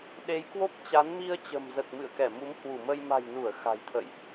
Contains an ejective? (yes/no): no